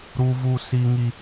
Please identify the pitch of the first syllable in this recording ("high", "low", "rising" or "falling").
high